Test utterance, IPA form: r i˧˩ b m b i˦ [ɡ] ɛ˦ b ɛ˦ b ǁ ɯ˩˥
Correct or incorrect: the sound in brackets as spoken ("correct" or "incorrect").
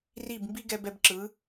correct